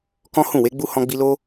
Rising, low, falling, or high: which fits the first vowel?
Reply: high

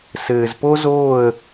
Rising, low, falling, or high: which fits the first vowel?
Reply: low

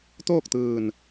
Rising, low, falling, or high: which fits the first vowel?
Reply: falling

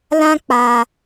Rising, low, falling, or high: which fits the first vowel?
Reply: high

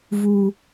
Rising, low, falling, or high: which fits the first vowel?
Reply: high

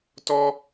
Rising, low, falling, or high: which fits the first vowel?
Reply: high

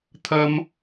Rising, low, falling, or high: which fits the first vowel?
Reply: high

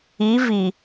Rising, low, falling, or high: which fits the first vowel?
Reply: rising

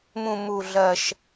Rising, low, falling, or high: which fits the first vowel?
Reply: low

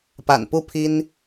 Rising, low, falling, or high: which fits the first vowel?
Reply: low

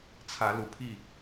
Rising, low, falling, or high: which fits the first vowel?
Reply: rising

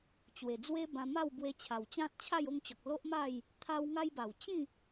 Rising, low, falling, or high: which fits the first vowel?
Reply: low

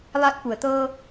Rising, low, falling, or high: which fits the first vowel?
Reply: rising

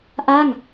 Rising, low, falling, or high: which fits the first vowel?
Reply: falling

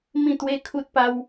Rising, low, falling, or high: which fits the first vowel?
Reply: falling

